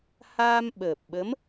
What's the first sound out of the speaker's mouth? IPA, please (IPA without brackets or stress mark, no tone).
h